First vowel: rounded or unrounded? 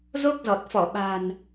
rounded